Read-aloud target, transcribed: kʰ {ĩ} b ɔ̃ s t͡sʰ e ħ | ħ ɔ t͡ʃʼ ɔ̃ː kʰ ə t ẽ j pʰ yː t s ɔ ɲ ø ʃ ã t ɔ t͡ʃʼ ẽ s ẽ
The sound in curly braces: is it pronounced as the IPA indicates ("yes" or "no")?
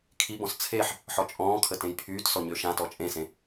no